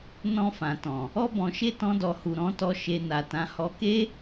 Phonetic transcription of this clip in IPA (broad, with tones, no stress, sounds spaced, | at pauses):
n ɔ̃˧ f ã˨ t ɔ̃˨ | ɔ˧ b ɔ̃˨ ʃ e˧ t ɔ̃˧ d ɔ˨ h u˨ ɾ ɔ̃˧ t ɔ˧ ʃ e˧ n a˨ t ã˨˦ h ɔ˧ k e˦